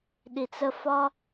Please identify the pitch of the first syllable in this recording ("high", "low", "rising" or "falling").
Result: low